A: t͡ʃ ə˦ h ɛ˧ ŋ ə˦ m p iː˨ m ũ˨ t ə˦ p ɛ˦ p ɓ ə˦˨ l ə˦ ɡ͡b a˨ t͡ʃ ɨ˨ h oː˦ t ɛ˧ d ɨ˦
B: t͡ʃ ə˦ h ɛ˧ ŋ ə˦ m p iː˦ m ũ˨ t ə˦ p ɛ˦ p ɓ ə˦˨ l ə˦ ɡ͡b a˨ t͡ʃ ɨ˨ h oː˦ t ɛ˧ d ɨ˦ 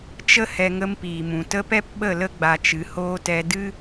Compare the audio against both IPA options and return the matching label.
A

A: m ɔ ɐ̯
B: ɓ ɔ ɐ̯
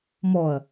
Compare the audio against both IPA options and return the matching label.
A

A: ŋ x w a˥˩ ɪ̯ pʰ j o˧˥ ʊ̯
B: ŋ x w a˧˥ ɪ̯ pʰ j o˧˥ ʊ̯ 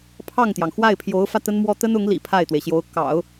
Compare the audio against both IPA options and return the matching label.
A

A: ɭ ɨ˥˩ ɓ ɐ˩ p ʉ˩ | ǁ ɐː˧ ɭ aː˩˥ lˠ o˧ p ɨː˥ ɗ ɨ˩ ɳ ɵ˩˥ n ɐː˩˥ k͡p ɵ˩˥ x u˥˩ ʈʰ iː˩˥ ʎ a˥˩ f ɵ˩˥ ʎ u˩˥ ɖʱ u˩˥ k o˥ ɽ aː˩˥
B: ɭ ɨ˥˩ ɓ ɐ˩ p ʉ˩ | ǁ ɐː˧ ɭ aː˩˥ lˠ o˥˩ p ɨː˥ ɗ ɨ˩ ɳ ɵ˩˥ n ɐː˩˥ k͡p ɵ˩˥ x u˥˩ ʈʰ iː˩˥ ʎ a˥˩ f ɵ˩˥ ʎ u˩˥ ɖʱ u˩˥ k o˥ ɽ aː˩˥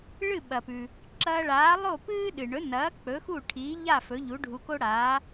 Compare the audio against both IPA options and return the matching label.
B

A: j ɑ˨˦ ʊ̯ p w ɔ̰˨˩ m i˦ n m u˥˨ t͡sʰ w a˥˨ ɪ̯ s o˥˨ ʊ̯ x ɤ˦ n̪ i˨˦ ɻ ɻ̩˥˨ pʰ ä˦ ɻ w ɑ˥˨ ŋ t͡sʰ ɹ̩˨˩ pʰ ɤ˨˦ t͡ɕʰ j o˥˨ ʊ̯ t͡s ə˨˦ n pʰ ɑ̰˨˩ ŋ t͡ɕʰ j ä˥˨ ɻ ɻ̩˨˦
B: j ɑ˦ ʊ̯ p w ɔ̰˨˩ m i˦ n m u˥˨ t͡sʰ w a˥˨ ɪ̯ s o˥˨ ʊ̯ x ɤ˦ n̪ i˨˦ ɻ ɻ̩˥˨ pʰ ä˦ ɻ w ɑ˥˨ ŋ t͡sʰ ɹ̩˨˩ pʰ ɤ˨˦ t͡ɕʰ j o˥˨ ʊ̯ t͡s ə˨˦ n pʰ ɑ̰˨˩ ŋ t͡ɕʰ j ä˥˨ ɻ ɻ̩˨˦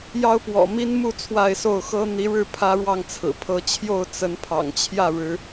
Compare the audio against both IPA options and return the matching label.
B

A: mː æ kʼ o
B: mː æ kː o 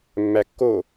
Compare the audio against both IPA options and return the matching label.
B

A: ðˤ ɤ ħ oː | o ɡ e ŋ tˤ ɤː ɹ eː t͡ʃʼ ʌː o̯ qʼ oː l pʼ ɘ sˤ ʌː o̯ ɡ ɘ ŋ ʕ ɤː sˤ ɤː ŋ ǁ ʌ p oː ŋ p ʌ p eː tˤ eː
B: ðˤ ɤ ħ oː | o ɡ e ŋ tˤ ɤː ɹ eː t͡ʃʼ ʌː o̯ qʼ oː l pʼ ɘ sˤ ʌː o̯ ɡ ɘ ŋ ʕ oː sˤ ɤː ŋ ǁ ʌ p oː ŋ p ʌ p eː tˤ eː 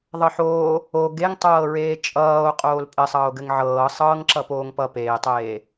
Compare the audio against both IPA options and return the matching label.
A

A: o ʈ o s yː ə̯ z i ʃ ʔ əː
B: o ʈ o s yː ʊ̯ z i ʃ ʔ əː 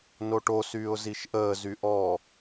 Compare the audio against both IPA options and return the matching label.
B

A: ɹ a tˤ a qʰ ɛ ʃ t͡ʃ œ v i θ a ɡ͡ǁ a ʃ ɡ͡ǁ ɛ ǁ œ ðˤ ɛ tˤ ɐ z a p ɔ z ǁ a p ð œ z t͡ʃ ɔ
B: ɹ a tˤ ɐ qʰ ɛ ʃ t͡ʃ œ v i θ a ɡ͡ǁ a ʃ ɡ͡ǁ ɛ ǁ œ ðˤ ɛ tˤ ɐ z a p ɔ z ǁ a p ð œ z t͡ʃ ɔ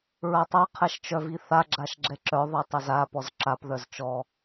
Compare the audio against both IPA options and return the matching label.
A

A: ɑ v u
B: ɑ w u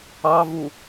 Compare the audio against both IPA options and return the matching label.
A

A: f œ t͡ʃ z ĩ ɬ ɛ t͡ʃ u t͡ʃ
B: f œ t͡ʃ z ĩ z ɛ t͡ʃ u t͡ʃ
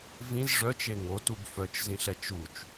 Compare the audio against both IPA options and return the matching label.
A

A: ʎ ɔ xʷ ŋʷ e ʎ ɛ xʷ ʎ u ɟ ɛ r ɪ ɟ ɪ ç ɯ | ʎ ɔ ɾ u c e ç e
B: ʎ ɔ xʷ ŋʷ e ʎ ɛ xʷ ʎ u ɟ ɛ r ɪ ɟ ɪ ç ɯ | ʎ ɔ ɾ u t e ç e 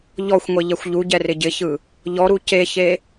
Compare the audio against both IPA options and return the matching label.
A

